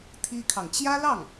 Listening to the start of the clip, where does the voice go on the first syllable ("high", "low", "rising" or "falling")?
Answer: high